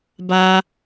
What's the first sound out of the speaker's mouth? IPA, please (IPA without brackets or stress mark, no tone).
b